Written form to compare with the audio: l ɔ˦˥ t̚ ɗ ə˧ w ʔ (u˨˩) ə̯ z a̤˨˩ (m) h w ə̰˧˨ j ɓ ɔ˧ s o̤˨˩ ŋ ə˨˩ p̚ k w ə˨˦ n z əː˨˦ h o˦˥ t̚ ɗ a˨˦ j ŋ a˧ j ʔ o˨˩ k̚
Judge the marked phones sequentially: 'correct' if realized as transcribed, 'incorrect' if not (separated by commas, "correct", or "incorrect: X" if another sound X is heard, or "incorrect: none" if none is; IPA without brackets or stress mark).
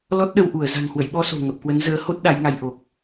incorrect: u˧˩, incorrect: ŋ